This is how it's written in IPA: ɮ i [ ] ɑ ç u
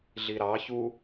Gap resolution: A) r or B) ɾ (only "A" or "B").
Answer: B